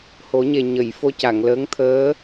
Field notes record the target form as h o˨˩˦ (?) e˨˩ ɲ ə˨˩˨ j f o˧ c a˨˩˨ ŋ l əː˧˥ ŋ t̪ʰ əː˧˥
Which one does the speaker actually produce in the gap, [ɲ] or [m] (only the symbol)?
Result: ɲ